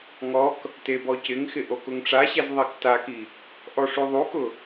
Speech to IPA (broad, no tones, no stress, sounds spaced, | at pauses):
ŋ ɔ k | t e b ɔ c ɪ ŋ x ɪ ʔ o k ʊ ŋ ʈ͡ʂ a ɕ ɛ z ðˤ i k t a k i | ʔ ɔ ʂ u ðˤ u k ʊ